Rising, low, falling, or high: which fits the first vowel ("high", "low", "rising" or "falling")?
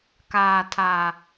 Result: low